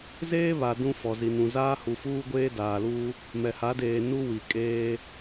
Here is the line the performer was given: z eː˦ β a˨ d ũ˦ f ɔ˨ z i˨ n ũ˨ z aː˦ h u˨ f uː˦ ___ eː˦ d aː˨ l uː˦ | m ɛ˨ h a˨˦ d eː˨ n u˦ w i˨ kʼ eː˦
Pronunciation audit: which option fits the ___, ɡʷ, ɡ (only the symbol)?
ɡʷ